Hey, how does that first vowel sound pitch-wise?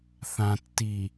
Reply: low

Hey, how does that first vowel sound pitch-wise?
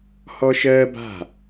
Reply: high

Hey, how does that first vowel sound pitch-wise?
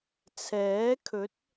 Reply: rising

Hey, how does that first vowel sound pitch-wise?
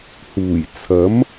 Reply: low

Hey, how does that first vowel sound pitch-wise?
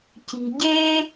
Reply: low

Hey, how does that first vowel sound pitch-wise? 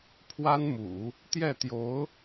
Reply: high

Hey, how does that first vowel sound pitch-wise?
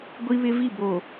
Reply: high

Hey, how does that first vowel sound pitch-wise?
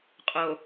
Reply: low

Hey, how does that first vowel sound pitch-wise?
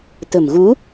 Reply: low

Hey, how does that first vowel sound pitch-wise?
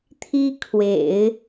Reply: high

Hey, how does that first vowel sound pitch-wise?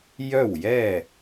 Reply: falling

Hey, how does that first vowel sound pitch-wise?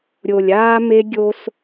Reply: low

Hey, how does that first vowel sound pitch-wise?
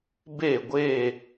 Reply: falling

